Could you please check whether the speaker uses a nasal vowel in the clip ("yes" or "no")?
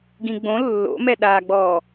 yes